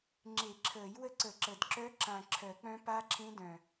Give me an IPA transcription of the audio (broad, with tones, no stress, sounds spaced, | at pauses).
ŋ͡ǁ e˨˩˦ ǁʰ əː˨˩˦ j w ə˦˥ ǀ ə˨˩˦ ǁ ə˨˩ d ǁ œ˦˥ ǁ ã˨˩ ǁʰ œ˨˩˦ k͡p œ̃˦˥ p a˦˥ ǁʰ ẽ˦˥ d œ̃˨˩